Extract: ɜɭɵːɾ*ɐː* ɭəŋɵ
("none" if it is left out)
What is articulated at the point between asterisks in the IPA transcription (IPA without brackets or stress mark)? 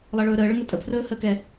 əː